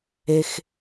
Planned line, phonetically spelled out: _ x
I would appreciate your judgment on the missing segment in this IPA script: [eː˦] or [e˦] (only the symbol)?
e˦